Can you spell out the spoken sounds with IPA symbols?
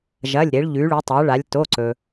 ʒ ɐ˩˧˩ lʲ ɾ e˩˧ ɭ ʎ ʉ˩˧ ɭ u˩˧ tˤ a˩˧ ɭ a˩˧ lʲ t o˩˧˩ ǀ ɵ˩

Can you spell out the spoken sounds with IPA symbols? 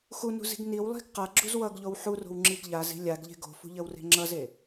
x u n ṳ z i̤ ɡ n i w lˠ i̤ ɡ q a ɡ͡ǁ u z w ʌ ɡ ʎ o w ħ u r o̤ w ŋ͡ǁ i ɡ ʎ a z i̤ lʲ a ɡ ʎ e̤ ɡ o̤ f ṳ ʎ ə w r e̤ ŋ͡ǁ ʌ z e

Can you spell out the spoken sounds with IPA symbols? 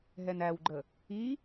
ɦ ɛ n æ w ɡ͡ǃ ə | i

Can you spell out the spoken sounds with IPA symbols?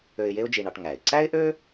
ø˧ ɪ̯ j e˥ ʊ̯ d͡ʒ i˧ ɳ ɑ˧ ʈ ŋ æ˩ ɪ̯ ǀ æ˥ ɪ̯ ʔ ø˥

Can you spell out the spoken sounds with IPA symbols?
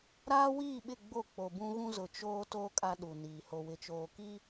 ɾ aː˦ w iː˦˨ ɓ ɪ˦˨ ɡ͡b o˦˨ k͡p o˨ b ũ˦ ɣ ũ˦ z ʊ˨ t͡ʃ oː˦ t o˦ kʼ a˦ ɗ u˨ n iː˨ h o˨ w ɪ˨ t͡ʃ oː˨ k iː˦

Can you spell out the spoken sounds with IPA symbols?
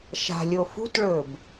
ʃ a̤ lʲ o f ṳ t ɭ ɵ b

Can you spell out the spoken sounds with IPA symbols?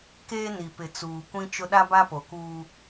k eː˦ n i˨ p ɪ˨ t͡s uː˨ kʷ ĩ˦ t͡ʃ ʊ˦ ɗ a˦ b a˦ p o˨ k uː˦

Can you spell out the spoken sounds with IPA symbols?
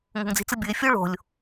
ŋ o̤ ŋ d͡z i̤ t͡s ɯ bʲ ɯ e̯ fʲ o ɭ o̤ lʲ

